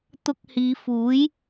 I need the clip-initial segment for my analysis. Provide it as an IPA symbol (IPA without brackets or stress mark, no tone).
t̪